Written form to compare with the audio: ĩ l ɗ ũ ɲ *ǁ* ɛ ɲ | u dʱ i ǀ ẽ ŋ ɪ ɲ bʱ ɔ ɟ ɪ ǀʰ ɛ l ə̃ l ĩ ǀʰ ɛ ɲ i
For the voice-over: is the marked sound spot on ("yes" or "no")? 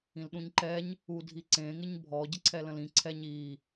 no